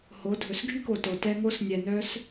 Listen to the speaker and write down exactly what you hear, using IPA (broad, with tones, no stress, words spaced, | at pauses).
ho˩˧dʱɵ˩sɡʱy˥ko˩ to˩tɛ˧ ŋo˧snʲɛ˩nœ˧s